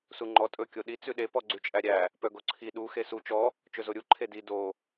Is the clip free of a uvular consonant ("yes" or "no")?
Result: yes